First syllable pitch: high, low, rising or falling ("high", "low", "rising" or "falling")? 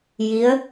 rising